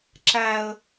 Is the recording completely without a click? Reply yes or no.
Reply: no